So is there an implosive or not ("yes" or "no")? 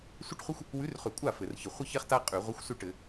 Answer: no